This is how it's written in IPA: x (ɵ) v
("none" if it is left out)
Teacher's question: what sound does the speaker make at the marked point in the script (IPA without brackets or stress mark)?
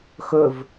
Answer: ɵ